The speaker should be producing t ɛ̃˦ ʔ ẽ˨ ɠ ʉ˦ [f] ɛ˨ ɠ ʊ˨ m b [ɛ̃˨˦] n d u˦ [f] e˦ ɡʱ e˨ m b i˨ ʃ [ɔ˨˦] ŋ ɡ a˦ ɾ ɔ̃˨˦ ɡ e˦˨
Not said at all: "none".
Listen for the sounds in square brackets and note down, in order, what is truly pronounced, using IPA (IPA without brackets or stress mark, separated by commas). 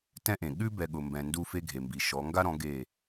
b, ɛ̃˨, f, ɔ˨˦